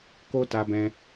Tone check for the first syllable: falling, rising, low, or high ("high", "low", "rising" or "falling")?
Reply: high